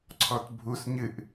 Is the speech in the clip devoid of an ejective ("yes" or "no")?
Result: yes